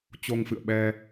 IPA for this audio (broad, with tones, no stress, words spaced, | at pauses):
t͡ɕo˧ŋfɨ̰˧˨ə̯ɓɛ˧